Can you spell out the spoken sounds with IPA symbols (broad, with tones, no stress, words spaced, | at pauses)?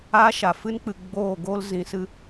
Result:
a˦ʃa˨ fɨ˦nk͡pɨ˨ ɡ͡boː˦˨ ɡoː˦lzĩ˨sɨ˧